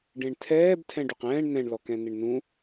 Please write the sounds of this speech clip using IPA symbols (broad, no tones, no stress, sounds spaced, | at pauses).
ɖ ẽ ɳ tʰ ɛː b tʰ ɛ̃ ɖ u q ɛ̃ː ɳ n ɛ̃ ɳ l ɔ k ɛ̃ n ɪ ɳ n ũ